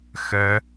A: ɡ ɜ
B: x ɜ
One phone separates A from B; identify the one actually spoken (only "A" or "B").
B